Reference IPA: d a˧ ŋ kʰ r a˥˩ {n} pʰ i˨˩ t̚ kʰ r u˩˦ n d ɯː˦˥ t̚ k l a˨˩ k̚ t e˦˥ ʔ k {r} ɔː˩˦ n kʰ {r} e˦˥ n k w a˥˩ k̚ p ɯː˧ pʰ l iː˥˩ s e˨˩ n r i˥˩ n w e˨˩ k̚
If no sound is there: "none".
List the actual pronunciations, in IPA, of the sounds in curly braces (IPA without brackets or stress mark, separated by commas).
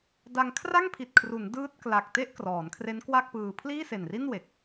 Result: ŋ, r, r